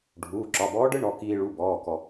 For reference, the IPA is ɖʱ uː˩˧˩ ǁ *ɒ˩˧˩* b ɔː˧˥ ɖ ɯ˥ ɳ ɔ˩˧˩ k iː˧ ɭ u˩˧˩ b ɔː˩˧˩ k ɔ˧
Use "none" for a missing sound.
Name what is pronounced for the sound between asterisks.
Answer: ɒ˩˧˩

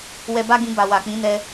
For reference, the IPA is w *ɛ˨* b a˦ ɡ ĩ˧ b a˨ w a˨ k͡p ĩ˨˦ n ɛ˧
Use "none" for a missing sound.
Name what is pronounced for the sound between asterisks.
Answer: ɛ˧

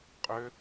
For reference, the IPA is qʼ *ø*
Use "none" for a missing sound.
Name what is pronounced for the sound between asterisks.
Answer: ø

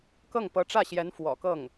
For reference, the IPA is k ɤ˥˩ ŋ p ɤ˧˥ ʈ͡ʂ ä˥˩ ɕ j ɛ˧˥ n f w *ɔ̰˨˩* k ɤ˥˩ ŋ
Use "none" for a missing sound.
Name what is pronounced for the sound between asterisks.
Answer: ɔ̰˨˩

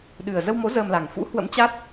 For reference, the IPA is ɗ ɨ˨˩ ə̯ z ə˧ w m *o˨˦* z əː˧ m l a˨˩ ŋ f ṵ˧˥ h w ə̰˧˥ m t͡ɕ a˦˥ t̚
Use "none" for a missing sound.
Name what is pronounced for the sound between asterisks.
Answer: o˨˦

